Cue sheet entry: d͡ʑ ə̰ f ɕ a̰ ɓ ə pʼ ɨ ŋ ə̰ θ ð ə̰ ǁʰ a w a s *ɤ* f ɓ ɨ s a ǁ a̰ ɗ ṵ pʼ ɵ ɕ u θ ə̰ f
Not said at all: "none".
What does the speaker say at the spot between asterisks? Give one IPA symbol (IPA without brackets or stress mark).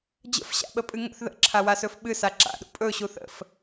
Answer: ɵ